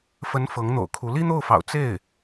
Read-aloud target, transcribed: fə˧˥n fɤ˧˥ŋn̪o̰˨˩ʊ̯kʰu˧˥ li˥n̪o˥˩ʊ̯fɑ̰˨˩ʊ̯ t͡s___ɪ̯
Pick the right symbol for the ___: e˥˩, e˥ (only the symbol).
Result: e˥˩